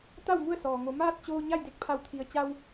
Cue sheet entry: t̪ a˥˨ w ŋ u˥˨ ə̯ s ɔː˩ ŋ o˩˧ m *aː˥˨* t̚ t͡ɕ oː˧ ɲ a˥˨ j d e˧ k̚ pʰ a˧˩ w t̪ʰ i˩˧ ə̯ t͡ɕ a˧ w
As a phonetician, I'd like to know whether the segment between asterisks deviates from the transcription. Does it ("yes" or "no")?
no